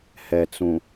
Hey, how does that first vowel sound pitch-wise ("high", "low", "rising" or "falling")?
low